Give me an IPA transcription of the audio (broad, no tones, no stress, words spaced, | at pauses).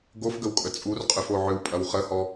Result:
ɡofɡəwkʼə t͡sʼurqʼyfo ʕʏwpʼɐw χəhɔ